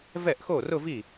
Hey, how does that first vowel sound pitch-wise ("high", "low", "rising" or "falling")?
falling